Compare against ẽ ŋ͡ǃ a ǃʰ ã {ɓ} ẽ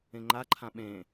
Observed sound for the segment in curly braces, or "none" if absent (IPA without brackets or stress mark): ɓ